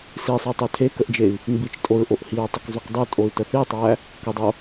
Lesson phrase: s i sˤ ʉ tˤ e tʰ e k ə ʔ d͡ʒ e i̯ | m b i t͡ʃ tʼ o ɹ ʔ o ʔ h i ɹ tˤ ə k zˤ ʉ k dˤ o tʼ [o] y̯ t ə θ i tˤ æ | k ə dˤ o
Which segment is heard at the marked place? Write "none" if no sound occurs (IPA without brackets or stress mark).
o